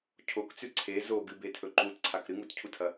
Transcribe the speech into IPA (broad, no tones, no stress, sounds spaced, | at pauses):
cʰ o k t͡s ʉ ǀʰ e z o ɡ ɨ b e tʰ ɵ ǃ u t ǀʰ a k ɾ ɨ ŋ u t cʰ u tʰ ɐ